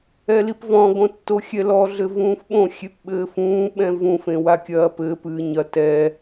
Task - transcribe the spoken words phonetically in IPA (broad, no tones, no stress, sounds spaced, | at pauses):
ɛ l i p v ɔ̃ ɡ õ tː o xʲ ɛ l ɔ ɮ ɘ v ũː f ɓ õ xʲ e p ɓ ɘː f ũː ɓ ɛ̃ v ũ f ẽ w a kʲ ɐː p ɘː p ɨː ɲ ɐ t ɛ